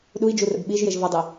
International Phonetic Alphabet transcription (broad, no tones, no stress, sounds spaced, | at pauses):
ɗ u i̯ d͡ʒ u r ə̰ b ɓ i ʒ j e ʒ v ɐ dˤ i